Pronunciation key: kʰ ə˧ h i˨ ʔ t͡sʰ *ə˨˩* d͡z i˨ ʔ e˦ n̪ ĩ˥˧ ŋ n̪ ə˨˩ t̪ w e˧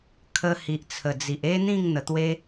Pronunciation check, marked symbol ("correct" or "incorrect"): correct